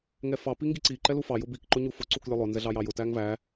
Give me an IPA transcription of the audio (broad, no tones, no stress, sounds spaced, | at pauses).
ŋ ɛ f ɑ p i ŋ ɡ i ǀ i ǃ ɛ l u f ɑ j ʊ b i k ǃ ʊ ɲ u f ʊ ǀ u k lʲ ʊ lˠ ʊ n z ɛ ɮ ɑ j ɑ j ʊ t æ ŋ v æ